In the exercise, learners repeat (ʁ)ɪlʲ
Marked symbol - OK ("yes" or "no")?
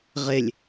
yes